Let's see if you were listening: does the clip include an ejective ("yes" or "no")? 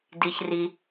no